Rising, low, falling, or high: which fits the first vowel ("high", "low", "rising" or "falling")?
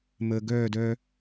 low